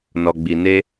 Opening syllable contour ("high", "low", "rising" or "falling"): low